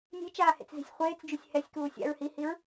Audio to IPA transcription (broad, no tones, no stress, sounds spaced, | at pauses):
nʲ e̤ t͡ʃ aː h ḛ t͡s z i̤ sʲ χʷ eː t͡s d͡ʒ u sʲ h ɛ sʲ k uː sʲ a̰ ɹ h i h i ɹ